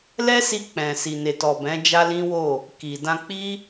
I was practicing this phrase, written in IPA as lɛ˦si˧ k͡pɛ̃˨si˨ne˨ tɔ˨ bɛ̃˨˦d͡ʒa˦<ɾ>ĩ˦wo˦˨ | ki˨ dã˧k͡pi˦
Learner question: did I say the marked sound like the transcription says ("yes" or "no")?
no